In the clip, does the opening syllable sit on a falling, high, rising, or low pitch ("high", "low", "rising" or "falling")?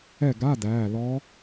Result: falling